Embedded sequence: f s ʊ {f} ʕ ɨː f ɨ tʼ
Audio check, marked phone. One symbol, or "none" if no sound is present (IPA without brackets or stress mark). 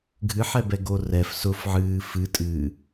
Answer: f